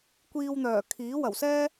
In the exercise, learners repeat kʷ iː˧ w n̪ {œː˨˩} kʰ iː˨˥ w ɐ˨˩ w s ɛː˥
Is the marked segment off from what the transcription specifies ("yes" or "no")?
no